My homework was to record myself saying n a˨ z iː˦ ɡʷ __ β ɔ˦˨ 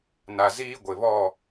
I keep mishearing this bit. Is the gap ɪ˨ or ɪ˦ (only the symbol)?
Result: ɪ˨